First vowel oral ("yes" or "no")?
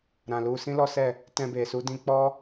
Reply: no